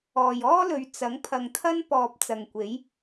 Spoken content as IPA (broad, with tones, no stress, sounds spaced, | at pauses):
ɔː˨ j ɔː˥ l ɵ˨˧ ɥ t͡s ɐ˨˥ ŋ pʰ ɐ˨ ŋ t̪ʰ ɐ˥ n p ɔː˨ p̚ t͡s ɐ˨ ŋ kʷ e˨˥ j